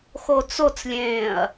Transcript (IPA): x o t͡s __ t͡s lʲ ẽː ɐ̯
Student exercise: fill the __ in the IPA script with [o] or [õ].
o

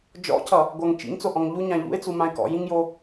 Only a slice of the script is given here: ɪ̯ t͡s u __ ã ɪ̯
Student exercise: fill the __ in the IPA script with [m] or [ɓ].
m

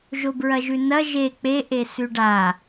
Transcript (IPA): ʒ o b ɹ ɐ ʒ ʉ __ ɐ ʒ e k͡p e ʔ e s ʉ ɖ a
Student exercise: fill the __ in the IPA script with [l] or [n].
n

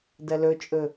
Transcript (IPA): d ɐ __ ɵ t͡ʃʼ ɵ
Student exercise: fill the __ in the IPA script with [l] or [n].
l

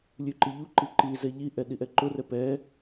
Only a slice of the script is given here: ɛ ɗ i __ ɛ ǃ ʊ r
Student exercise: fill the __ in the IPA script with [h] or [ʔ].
ʔ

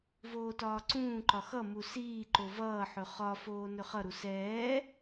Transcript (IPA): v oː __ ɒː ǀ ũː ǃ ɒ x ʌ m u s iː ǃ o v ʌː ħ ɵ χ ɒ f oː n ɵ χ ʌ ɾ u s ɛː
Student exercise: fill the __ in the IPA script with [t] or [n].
t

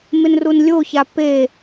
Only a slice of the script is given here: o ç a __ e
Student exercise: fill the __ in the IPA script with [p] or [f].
p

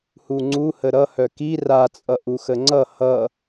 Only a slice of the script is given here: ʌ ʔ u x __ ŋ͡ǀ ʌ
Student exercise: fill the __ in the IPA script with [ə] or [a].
ə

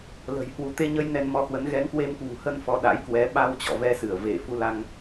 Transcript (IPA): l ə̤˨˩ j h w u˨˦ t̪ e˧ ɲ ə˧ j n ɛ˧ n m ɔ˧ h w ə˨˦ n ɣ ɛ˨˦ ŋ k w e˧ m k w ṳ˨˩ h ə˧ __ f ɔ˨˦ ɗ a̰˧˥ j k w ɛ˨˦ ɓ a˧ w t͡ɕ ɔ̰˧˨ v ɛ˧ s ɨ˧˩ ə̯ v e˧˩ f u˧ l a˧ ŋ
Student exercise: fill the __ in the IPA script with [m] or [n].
n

